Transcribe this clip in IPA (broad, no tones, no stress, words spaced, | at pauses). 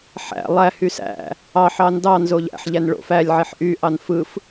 ħæ̰ lˠæ hysæ̰ | ɑ ħɑndɑ nzoʎæ̰ħ ʎænɭo̰f ælʲ ʕeħʔy ʔɑnfɯf